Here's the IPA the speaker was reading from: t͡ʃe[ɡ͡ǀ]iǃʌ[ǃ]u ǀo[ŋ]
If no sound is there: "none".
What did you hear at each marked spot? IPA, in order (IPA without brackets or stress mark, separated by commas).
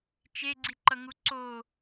ɡ͡ǀ, ŋ, none